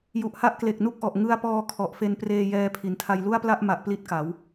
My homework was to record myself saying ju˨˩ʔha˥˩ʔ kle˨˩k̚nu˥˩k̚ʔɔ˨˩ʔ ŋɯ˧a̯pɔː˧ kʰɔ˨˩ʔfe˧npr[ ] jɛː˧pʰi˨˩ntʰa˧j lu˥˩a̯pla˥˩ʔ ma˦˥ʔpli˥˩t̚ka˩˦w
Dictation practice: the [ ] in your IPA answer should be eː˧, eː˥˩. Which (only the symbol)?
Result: eː˧